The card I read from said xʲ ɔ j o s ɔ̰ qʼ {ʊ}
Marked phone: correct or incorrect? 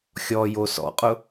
correct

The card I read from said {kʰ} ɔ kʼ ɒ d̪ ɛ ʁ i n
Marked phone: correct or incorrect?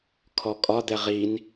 correct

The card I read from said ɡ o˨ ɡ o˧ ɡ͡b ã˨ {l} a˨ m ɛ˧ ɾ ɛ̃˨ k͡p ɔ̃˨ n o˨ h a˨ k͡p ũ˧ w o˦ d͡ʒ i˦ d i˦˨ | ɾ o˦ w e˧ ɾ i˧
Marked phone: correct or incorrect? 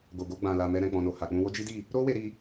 correct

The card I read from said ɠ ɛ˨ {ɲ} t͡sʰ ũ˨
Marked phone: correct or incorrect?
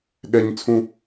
correct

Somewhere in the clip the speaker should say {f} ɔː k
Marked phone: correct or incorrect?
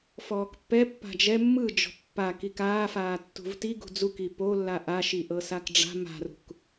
correct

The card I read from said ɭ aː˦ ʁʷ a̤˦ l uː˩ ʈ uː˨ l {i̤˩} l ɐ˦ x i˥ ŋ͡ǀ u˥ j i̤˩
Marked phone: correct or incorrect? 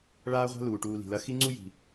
correct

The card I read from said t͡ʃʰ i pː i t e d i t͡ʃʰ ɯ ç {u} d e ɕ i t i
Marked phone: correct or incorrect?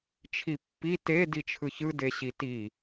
incorrect: ɯ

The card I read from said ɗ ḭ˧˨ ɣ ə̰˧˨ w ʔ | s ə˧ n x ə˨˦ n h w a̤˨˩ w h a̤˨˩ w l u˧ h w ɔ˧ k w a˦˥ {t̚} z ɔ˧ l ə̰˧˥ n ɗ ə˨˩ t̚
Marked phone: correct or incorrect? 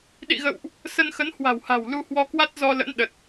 correct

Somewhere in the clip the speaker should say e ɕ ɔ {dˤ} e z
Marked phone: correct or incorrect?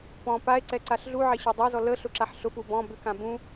correct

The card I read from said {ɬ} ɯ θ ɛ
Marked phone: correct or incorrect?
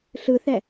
correct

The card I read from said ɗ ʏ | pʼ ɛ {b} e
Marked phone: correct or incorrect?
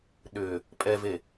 incorrect: v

